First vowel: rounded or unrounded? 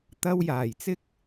unrounded